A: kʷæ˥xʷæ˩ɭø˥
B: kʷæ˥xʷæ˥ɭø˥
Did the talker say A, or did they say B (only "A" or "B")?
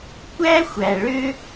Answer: A